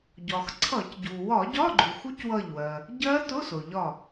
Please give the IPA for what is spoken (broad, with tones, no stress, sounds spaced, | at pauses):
ɟ ɒ˩ x ǀʰ ʌ˧˩˧ c ɟ u˩ w ɒ˧˩˧ ɟ ɒ˧˥˧ ɡ͡ǃ u˩ x u˦˥ c w ʌ˧˩ ʎ w ɜ˩ | ɟ ɜ˦˥ t ʊ˧˥˧ s ʊ˩ ʎ ɒ˧˩